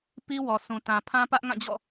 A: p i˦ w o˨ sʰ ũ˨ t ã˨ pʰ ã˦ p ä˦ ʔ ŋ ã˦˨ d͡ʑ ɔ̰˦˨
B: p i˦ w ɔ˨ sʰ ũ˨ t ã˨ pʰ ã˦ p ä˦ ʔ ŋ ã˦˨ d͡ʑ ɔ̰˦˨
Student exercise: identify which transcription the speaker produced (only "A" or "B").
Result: B